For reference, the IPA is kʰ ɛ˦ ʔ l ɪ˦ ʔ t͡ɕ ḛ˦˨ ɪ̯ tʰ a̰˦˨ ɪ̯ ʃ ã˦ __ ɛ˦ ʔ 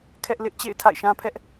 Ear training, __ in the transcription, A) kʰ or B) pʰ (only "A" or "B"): B